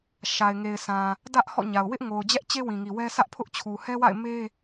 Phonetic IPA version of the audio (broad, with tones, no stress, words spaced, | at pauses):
ʃa˨ɪ̯ŋe˨ɪ̯sã˨ | dä˦ʔ hɔ̰˦˨ɲa˨ʊ̯ wɪ˦ʔŋo˨ʊ̯ d͡ʑɛ˦ʔt͡ɕe˦wĩ˨ŋi˨ wɛ˦ sä˦ʔpʰʊ˦ʔt͡ɕʰu˨ hɛ˦wa̰˦˨ɪ̯ me˦